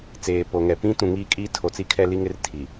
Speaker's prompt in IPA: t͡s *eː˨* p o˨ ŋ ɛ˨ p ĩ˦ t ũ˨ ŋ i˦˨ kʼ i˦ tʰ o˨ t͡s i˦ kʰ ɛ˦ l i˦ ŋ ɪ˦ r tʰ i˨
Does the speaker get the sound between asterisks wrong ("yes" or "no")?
no